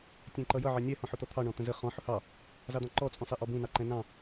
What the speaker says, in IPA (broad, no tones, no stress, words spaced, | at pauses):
tʲɛ̃ǃʌjʌ ʕɛnʲɛ hɔ̃ħʊt̪ɔt̪ʰɑ ɳɔ̃t̪ə̃zə χɔ̃ ħʊhɑ | zɑd̪ɑ̃ǃɔ t͡sʼũsˤɛʔɔbũ nɑǃɛ̃nɑ̃